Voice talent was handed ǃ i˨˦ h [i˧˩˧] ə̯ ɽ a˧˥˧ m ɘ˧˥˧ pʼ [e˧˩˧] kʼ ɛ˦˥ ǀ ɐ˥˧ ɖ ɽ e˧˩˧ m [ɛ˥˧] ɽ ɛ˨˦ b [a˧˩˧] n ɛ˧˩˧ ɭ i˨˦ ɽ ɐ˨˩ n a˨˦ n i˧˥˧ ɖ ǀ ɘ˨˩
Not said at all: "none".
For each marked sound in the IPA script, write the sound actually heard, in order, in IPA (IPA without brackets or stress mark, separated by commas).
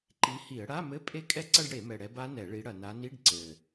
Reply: i˧˩˧, e˦˥, ɛ˨˩, a˦˥